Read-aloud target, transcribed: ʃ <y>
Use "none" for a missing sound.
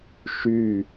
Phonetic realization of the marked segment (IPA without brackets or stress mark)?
y